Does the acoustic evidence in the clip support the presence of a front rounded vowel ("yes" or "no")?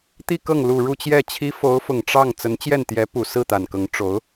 no